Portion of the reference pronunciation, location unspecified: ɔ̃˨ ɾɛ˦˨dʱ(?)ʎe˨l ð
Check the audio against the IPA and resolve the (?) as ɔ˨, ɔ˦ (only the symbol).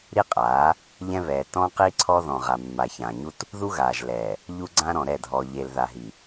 ɔ˨